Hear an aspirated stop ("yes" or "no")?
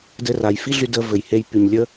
no